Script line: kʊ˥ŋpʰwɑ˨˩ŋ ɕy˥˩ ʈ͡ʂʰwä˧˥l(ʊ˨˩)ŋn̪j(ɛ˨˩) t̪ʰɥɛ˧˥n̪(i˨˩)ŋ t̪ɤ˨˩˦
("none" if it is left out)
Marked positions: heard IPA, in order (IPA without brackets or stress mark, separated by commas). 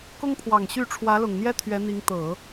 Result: ʊ˨˩, ɛ˥, i˧˥